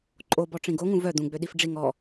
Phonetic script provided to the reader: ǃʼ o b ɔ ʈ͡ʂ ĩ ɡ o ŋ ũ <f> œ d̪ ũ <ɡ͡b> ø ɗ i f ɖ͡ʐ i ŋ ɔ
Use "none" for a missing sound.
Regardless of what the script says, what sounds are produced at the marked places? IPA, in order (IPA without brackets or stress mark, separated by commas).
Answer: v, ɡ͡b